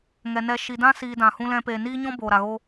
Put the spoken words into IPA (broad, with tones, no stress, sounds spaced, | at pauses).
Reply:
ŋ ɛ˨ n ɛ˧ ʃ i˨ d ã˦ s iː˧ d ã˨ h ũ˦ l ɛ̃˧ p eː˨ n iː˦ ɲ ɔ̃˦ b o˨ ɾ a˨ ɣ o˦